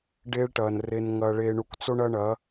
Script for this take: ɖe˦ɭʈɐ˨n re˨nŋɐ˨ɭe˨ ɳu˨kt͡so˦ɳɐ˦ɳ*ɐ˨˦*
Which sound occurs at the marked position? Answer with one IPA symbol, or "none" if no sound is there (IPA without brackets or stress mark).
ɐ˨˦